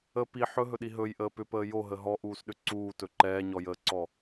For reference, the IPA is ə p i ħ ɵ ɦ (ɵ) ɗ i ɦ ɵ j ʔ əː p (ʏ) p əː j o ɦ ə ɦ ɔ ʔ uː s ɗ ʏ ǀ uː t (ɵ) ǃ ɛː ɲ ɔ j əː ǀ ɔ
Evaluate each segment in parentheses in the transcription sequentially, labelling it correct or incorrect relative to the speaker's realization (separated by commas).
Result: correct, correct, correct